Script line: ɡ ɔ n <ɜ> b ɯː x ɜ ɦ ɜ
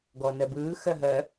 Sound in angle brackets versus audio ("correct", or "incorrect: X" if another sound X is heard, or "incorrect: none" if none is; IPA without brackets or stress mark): correct